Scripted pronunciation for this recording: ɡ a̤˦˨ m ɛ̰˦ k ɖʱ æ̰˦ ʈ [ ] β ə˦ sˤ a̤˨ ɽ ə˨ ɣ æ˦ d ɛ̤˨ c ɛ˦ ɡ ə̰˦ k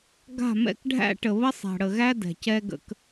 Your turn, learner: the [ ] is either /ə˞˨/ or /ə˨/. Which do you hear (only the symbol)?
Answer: ə˨